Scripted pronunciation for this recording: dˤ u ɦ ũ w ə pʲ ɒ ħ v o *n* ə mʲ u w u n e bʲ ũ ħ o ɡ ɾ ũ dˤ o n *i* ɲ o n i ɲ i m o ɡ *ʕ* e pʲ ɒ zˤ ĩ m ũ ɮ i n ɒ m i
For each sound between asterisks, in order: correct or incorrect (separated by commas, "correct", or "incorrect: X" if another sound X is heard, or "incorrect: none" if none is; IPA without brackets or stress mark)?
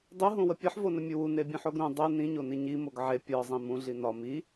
correct, incorrect: ĩ, correct